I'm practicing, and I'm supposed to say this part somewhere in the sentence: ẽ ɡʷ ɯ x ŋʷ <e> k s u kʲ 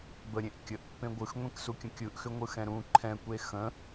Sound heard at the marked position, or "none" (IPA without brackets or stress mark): ẽ